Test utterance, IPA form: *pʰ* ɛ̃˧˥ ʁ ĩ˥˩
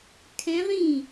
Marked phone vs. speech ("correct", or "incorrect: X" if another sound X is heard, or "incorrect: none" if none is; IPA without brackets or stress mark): incorrect: kʰ